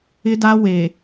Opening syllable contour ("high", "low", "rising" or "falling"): high